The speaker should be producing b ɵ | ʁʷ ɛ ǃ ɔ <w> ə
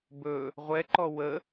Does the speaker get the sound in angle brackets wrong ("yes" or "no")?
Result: no